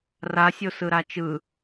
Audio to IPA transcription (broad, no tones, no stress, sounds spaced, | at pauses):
r a sʲ o s ɯ ɾ a t͡ʃ ɯ